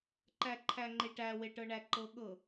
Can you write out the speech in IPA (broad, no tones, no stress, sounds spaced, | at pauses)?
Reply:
ǃ æ ǃʰ æ ŋ͡ǃ e ʈ æ w e ʈ ɤ ɳ æ ǃ ɤ ɠ ɤ